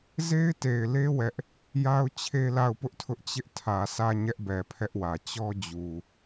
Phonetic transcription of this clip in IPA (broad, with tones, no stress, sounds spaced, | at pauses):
z e˦ ɪ̯ t e˨ ɪ̯ l e˦ w ɛ˦ ʔ | j a˦ ʊ̯ t͡ɕʰ e˦ l a˦˨ ʊ̯ p ʊ˦ ʔ tʰ ʊ˦ ʔ t͡ɕ ɪ˦ ʔ tʰ ä˨ sʰ ä˦˨ ɲ ɛ˦ ʔ b ɛ˨ pʰ ɛ˦ ʔ w ä˨ t͡ɕ ɔ˦ d͡ʑ u˨